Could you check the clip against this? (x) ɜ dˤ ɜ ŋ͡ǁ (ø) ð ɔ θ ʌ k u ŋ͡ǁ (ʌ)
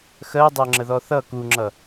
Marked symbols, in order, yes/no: yes, no, yes

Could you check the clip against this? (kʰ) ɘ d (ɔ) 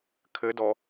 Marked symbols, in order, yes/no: yes, yes

